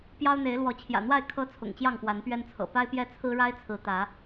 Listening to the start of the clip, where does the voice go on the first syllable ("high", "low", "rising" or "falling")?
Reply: high